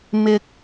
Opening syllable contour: low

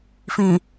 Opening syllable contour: low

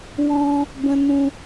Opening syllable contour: high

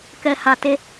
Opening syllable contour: low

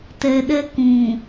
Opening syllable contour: low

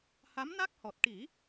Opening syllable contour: rising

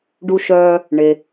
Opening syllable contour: high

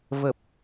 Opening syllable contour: low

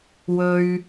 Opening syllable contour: high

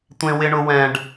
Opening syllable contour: high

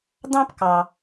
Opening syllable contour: high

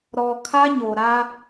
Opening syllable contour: low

